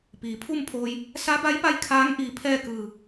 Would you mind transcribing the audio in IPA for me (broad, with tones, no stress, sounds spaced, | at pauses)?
p iː˩ pʰ u˥˨ m pʰ oː˧ j | s a˧˥ b a˧˥ j p a˧˥ j kʰ aː˧˥ ŋ ʔ iː˧˩ pʰ ɛː˥˨ k ɯː˧˩